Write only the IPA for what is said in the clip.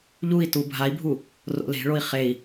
ʎ u i̯ t u bʱ a i̯ bʱ u | r o̰ l e̤ ɭ o i̯ χ e i̯

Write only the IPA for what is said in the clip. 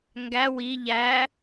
ŋ ɡ æ w i ʎ æ

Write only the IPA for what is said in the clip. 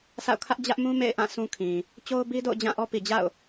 s a̰˦˨ ʊ̯ kʰ ä˦ ʔ d͡ʑ ä˦ ʔ m ũ˦ m ḛ˦˨ ɪ̯ ʔ ã˦˨ sʰ ũ˦ kʰ ĩ˨ | t͡ɕ o˦ ʊ̯ b i˦ d o̰˦˨ ʊ̯ d͡ʑ ã˦˨ ʔ ɔ˦ p i˨ d͡ʑ a̰˦˨ ʊ̯

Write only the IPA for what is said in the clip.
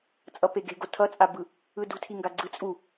t͡sʼ ʌ p e ɡ e̤ ɡ o tʰ ʌ t͡sʼ a b ɯ | ɯ d ṳ tʰ i ŋ ɡ a ɡ͡ǀ ɯ t͡sʼ u

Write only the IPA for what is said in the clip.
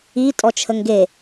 i tʼ ɔ t͡ʃʰ ə ŋ ɡ e

